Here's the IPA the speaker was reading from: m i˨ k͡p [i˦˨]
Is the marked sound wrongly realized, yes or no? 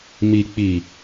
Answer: yes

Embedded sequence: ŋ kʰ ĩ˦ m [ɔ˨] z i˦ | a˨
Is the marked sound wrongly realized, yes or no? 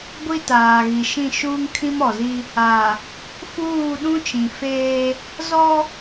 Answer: no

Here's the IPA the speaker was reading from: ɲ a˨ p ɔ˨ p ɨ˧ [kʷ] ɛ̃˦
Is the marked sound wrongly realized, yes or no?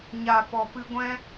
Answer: yes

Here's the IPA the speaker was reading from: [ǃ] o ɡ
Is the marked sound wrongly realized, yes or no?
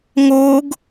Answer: yes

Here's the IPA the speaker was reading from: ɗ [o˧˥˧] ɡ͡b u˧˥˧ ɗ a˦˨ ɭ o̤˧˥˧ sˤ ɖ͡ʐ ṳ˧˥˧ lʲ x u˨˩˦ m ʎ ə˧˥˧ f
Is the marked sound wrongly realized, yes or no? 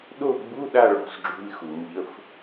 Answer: yes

